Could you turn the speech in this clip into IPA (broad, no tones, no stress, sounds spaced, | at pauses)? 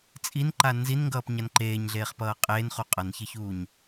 t͡sʼ i n ǃ a n z i n ŋ ɡ ʌː p ɲ a n ǃ eː ɲ ɮ eː χ p ʌː qʼ eː n χ u qʼ ʌ n ç e ç uː ɲ